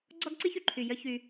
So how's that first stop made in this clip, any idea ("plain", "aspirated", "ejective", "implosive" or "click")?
click